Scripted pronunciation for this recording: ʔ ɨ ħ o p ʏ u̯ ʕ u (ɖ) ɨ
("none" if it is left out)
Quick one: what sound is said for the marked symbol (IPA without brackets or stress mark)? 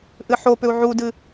d